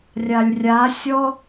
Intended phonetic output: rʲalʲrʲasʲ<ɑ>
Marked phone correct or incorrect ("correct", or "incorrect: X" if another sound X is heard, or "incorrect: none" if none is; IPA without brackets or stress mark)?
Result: incorrect: ɔ